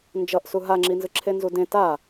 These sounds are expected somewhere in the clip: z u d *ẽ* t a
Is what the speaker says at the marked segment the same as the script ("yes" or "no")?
yes